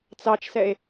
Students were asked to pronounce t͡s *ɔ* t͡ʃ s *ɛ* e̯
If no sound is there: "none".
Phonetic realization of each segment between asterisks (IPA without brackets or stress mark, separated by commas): ɑ, ɛ